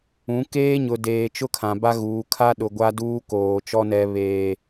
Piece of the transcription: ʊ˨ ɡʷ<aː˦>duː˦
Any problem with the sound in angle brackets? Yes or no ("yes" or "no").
yes